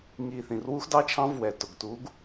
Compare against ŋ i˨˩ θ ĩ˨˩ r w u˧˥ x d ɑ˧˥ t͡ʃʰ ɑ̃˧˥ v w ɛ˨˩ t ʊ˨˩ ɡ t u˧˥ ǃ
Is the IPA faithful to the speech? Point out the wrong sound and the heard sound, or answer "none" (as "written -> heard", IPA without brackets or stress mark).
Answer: ǃ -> ɡ